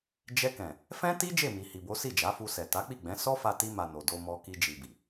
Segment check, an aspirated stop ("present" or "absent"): absent